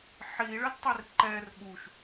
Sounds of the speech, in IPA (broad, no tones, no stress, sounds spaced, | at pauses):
ħ i ɭ ə d tˤ i r ǃ ɛ r ɠ u ʃ